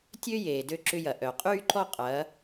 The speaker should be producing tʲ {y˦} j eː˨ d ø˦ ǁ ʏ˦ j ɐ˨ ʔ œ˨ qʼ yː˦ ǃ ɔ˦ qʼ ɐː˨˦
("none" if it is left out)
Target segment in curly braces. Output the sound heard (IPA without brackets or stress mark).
ø˦